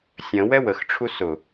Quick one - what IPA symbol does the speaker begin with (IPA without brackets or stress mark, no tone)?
sʲ